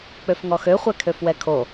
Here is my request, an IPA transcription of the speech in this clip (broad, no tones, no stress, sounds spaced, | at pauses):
k͡p ø f ŋ ɔ x ø χʷ ɛ kʰ ø f w ɛ kʰ o